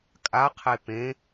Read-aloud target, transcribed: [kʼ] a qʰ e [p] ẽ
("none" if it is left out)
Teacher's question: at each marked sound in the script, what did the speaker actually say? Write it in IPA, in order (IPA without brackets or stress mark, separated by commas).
kʼ, p